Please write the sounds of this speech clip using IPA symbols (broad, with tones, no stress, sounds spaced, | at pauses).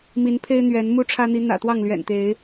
m i˨˦ n pʰ e˦ ɪ̯ n̪ ɥ ɛ˨˦ n m u˥˨ ʈ͡ʂʰ ä˦ n̪ i˨˦ n̪ ä̰˨˩ t̪ w ɑ˥˨ ŋ l ɥ ɛ̰˨˩ n t̪ e˨˦ ɪ̯